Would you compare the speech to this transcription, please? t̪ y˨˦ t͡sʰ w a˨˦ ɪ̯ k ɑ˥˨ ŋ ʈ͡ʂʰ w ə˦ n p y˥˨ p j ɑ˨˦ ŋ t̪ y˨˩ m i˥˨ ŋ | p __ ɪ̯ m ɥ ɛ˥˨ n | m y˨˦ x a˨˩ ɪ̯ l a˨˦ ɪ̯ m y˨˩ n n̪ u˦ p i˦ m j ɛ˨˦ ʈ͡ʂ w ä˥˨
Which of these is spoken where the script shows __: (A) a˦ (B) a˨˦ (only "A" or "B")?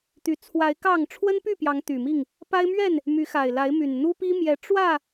A